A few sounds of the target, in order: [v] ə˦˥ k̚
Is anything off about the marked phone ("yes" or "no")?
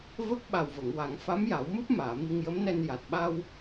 no